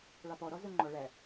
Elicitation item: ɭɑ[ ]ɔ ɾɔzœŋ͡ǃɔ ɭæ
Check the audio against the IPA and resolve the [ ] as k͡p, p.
p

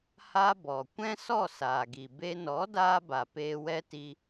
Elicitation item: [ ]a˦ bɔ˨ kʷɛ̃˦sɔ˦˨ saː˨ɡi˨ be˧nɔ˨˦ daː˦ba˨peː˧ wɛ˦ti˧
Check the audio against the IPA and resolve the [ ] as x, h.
h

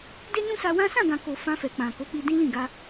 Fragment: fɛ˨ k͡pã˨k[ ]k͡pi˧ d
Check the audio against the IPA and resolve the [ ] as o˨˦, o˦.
o˨˦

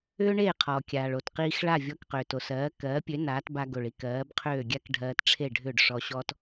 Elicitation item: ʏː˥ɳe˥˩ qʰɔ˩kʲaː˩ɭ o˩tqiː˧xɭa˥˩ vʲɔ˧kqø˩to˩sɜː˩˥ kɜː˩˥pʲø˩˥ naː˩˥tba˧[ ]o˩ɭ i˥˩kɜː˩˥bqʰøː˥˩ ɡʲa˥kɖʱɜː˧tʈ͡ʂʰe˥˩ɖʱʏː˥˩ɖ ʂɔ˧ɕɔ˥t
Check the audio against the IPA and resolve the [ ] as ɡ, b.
ɡ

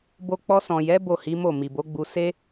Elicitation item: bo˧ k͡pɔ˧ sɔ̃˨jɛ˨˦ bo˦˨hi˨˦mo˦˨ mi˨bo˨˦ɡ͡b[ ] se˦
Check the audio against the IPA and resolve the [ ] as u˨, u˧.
u˧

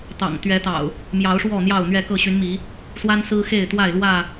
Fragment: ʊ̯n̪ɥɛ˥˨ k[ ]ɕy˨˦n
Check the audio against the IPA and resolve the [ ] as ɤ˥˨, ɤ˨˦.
ɤ˥˨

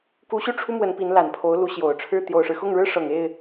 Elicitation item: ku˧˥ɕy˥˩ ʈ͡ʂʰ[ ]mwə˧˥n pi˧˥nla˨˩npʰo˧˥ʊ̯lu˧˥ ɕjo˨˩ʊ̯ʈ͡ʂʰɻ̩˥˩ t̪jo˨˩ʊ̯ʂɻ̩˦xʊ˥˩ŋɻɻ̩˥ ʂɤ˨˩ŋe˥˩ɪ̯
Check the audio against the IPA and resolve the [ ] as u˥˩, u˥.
u˥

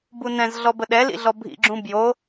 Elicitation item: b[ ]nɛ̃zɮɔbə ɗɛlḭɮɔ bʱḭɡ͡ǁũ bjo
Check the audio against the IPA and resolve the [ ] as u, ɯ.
u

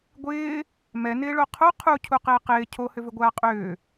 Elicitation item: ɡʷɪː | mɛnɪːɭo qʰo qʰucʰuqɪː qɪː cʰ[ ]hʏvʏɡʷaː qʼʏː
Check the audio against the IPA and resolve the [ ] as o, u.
o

